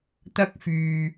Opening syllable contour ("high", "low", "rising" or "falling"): high